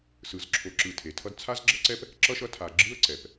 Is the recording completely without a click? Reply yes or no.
no